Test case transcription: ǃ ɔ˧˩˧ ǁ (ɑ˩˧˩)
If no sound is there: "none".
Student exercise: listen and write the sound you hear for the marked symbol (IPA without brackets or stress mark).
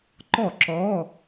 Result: ɔ˩˧˩